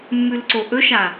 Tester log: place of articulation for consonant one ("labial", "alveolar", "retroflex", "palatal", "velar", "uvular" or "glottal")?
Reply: labial